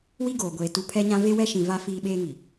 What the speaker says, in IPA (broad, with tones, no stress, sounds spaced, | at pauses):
w i˦ ɡ oː˨ ɡʷ eː˨ t u˨ pʰ ɛ˦ ɲ ã˦ v e˦ w ɛ˦ ʃ ĩ˨ v a˦ f iː˦ ɓ eː˦ ŋ i˨